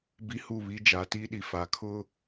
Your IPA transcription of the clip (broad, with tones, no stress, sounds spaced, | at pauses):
b i˦ h u˦˨ β i˦ d͡ʒ a˨˦ t i˦ ɗ i˨ f a˨ kʰ ʊ˦